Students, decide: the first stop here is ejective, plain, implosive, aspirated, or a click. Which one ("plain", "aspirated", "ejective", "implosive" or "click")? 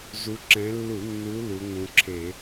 click